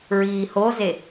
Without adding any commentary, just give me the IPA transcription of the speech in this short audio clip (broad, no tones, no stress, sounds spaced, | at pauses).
ɹ iː h o z e